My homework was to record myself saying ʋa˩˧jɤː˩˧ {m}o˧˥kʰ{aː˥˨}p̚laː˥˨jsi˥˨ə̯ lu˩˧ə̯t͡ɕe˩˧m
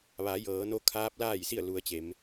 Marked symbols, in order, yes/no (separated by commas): no, no